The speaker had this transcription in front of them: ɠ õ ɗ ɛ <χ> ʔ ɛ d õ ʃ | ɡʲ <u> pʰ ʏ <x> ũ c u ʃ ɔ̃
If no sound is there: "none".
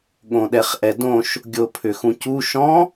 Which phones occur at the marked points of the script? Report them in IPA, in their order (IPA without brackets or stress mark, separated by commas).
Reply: χ, o, x